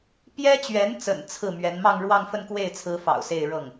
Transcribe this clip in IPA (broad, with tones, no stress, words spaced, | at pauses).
pjɛ˥t͡ɕɥɛ˧˥nt͡sə̰˨˩n t͡sʰɹ̩˥˩mɥɛ˧˥n mɑ˥˧ŋɻwɑ˥˧ŋfə˥˧nkwe˥˩ɪ̯ t͡sʰɹ̩˥fɑ̰˨˩ʊ̯se˥˧ɪ̯ɻɤ˥˩ŋ